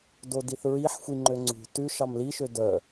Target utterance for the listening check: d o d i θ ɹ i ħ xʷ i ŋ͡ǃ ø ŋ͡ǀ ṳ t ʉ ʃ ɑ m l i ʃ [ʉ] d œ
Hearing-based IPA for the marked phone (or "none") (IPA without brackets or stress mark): ø